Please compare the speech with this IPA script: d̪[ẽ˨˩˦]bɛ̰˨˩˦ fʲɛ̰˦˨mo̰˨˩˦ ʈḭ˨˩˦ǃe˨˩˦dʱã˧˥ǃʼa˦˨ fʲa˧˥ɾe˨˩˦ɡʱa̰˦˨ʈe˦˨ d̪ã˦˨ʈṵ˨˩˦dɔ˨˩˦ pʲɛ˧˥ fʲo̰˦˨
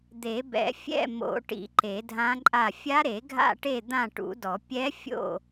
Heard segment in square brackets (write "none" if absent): e˨˩˦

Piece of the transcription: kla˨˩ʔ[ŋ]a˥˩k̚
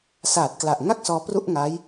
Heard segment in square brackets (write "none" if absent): ŋ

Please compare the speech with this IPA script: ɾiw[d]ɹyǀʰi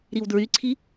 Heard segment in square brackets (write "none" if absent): d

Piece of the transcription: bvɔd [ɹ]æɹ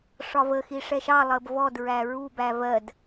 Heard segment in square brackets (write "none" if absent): ɹ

